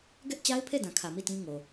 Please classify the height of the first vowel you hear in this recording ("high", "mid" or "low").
mid